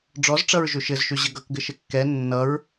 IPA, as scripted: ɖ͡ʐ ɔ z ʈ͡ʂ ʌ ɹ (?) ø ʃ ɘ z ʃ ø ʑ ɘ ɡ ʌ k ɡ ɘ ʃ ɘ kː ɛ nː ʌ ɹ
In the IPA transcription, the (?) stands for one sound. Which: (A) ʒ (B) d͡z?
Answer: A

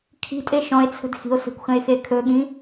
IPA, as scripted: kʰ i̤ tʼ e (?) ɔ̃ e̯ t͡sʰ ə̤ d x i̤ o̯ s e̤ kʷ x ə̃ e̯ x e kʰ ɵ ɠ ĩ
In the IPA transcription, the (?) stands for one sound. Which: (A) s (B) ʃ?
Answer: B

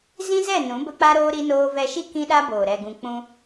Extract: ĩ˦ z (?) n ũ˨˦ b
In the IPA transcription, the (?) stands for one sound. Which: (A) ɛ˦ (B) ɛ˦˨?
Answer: B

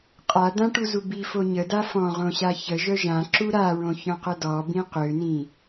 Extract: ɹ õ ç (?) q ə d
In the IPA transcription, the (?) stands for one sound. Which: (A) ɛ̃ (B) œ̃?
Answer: B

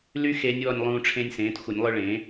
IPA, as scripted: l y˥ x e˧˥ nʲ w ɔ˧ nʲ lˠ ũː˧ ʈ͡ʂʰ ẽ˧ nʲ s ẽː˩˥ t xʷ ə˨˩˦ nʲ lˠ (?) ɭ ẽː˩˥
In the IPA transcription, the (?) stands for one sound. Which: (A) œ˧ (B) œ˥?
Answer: A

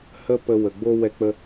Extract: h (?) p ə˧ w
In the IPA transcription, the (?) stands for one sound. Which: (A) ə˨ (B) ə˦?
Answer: B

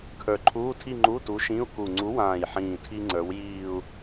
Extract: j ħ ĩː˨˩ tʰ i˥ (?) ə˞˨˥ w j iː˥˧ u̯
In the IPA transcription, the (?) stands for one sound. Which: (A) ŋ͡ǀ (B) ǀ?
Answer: A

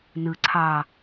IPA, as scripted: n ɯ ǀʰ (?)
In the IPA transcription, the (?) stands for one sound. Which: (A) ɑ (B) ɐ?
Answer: A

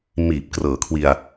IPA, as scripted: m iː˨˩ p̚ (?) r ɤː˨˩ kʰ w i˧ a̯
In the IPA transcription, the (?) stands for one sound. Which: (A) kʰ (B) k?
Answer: B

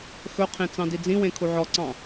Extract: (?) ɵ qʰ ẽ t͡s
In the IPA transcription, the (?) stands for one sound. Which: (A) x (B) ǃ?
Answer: A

